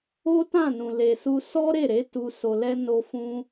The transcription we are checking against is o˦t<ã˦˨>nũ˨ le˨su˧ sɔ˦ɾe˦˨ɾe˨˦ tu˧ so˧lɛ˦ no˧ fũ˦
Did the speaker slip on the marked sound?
no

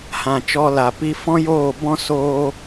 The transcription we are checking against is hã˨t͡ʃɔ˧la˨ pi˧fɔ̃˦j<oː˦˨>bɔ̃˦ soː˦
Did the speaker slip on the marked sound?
no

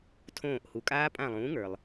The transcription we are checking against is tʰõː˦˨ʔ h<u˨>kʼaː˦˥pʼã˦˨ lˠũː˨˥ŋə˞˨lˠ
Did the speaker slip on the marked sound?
no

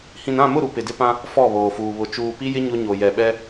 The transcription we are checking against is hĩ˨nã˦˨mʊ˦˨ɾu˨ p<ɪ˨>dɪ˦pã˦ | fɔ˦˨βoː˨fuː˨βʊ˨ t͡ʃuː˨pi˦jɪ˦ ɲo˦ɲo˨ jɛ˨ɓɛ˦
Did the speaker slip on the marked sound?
no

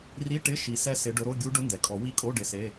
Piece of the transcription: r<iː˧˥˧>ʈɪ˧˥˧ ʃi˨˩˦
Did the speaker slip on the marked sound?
yes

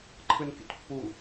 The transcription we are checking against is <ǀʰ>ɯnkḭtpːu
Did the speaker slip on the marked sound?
yes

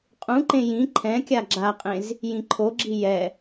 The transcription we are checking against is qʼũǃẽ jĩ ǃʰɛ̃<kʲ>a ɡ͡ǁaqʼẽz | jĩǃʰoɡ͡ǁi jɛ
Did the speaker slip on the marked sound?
no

